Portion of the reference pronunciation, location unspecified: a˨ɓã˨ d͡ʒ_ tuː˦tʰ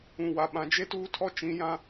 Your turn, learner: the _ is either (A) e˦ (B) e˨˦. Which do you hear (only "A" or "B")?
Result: A